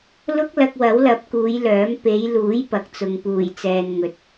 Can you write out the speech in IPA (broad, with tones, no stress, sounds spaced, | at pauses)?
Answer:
l ʊ˥ k̚ l ɐ˧ k̚ w ɐ˨˥ w l ɐ˨˥ p̚ k uː˨˧ j l œː˨˥ m p e˨˧ j l uː˨˥ j p ɐ˨˥ k̚ t͡s ʊ˨ ŋ p uː˨˩ j t͡s ɛː˨ n ŋ ɵ˨˥ t̚